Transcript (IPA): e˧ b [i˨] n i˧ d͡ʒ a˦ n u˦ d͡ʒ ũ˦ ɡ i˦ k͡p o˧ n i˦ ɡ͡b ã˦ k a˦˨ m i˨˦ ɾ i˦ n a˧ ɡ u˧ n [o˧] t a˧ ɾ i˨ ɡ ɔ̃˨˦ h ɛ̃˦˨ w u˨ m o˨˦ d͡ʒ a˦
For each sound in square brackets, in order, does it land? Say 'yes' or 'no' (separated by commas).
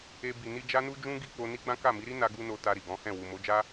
yes, yes